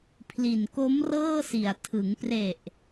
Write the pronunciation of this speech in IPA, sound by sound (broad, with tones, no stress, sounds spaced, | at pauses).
pʰ l i˨˩ n k o˦˥ m r ɤː˥˩ s i˨˩ a̯ tʰ ɯ˩˦ ŋ p r e˨˩ ʔ